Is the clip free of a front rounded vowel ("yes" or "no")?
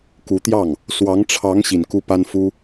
yes